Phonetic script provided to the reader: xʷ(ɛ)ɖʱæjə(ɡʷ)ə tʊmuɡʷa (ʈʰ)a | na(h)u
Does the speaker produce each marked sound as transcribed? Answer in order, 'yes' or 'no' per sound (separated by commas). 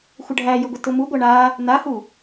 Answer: no, yes, no, yes